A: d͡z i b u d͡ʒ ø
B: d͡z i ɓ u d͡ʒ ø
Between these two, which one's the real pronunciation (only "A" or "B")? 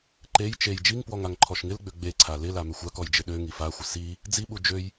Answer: B